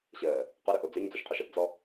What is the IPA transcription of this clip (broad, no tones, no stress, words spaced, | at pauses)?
ɕəː | qɵɾɵʔo d͡zøɲd͡zuʃqʰoʃ əpd͡zɔ